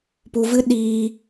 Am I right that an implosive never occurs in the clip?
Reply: no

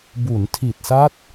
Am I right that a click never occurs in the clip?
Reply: yes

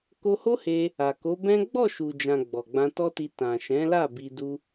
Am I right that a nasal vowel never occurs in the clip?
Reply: no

